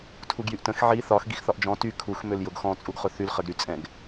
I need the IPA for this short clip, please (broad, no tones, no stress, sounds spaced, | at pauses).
tʰ u ɡ j y ʔ t ə̃ x ʕ i θ ɒ x ɡ i x θ ɒ ʔ d͡ʒ ɔ̃ t y kʰ u x m ø l j ʊ ɡ x ɔ̃ t͡sʼ u ɡ χ ʊ θ y l χ ə ɡ ɾ y t͡sʼ ɛ̃ ɡ